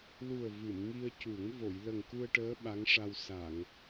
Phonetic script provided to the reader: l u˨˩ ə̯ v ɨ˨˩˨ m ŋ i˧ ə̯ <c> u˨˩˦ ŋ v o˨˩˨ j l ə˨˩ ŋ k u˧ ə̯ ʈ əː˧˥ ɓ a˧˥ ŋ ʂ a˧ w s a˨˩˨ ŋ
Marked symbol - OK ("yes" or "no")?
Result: yes